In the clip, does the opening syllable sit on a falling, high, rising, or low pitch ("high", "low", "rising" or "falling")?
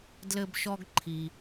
high